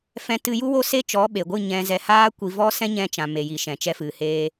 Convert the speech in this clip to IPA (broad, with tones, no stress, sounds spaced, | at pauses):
f ɛ̃˧ t ɨ˧ j u˦ w o˦ s e˦ t͡ʃ ɔ˨˦ ɓ e˨ ɡʷ ɨ˦˨ ɲ ɛ̃˧ z ɛ˧ h aː˦ kʷ i˧ v ɔ˦ s ɛ̃˦ ɲ ɛ̃˧ t͡ʃ ã˨ m e˨ j i˨ ʃ ɛ̃˨ t͡ʃ ɛ˧ f ɨ˨ h eː˧